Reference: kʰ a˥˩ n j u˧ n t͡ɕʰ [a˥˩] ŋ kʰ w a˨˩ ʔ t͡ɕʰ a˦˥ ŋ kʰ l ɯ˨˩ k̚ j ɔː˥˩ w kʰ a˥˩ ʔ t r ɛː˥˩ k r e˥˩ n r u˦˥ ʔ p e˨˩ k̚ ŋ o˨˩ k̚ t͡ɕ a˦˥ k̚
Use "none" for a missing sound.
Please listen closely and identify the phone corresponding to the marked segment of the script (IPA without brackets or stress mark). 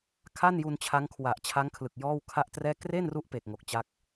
a˦˥